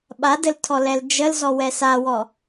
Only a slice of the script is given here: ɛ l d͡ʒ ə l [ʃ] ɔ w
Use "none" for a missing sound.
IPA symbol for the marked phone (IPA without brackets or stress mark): z